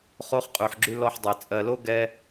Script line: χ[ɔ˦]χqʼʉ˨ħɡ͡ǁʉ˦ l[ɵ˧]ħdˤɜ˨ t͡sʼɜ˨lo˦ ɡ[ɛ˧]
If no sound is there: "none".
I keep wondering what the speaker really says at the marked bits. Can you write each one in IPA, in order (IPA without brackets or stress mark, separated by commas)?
o˦, ɔ˧, ɛ˦